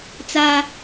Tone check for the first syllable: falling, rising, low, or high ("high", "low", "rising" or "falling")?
high